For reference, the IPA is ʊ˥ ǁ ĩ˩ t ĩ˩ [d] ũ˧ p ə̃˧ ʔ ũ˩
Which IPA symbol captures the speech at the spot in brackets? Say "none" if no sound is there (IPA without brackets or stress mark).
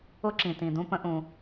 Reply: d